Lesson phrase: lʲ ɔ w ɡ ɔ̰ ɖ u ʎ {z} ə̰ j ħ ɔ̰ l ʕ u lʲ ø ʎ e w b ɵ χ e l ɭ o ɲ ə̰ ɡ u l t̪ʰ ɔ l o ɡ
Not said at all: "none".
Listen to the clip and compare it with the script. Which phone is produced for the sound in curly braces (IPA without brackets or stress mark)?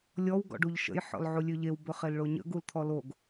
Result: ʃ